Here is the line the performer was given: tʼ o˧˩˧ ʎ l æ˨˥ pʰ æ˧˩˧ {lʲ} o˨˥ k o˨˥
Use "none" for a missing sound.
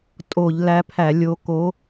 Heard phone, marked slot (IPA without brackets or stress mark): lʲ